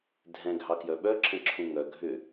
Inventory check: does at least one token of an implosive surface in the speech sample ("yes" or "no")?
yes